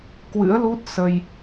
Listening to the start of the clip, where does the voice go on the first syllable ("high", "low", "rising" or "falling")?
rising